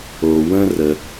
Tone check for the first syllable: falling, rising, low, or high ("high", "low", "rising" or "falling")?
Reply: low